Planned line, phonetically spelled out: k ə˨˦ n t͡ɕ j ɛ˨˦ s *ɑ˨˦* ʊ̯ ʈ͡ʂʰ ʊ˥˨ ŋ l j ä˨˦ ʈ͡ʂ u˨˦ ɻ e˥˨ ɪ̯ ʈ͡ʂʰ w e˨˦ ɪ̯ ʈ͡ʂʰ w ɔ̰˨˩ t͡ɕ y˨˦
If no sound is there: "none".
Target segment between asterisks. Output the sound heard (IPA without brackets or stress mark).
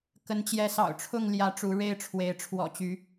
ɑ̰˨˩